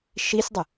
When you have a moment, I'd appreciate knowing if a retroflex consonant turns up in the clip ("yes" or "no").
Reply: no